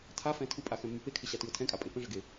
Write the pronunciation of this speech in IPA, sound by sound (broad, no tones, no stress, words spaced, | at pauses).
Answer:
tʰafɛ̃ tʰupʼaxɛ̃mːy pekʰɪɕatyʊ̯ tʰɛ̃kʼapʼe pə̃ʐɘɡe